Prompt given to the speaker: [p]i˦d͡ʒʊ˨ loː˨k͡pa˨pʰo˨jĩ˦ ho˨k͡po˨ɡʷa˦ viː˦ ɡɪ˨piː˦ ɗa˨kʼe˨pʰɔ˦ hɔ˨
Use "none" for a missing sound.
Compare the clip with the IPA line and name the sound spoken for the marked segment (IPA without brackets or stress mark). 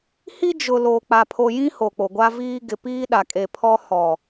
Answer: h